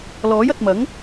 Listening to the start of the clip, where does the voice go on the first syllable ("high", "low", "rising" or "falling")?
rising